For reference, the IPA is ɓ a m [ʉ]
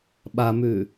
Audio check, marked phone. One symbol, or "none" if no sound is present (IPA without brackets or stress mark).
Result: ʉ